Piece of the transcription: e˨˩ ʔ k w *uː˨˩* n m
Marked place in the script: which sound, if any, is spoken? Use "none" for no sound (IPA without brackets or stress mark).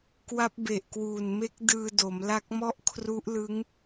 uː˨˩